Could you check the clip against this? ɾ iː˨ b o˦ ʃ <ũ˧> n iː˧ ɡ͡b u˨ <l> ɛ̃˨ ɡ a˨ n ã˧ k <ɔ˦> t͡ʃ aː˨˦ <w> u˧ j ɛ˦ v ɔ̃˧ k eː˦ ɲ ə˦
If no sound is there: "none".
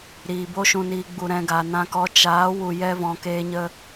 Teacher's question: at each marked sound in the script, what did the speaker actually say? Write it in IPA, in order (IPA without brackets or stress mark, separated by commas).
ũ˧, ɾ, ɔ˧, w